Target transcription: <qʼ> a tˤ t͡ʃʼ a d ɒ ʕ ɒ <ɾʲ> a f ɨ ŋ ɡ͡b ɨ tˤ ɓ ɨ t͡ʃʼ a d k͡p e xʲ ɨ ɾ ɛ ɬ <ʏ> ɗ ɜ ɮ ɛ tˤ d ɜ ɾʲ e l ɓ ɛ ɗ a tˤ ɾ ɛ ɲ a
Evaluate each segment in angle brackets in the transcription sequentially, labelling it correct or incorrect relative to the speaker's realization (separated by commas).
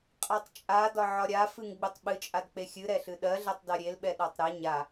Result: correct, correct, incorrect